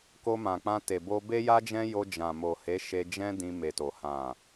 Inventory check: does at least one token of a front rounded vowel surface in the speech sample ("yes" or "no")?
no